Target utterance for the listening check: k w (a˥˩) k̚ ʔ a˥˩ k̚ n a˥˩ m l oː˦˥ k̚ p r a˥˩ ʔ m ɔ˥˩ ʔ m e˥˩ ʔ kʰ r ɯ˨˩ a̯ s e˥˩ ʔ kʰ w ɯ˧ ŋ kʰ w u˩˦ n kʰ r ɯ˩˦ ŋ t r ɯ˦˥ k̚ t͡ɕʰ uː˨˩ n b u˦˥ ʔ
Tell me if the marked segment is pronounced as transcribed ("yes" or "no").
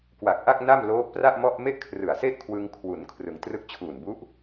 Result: no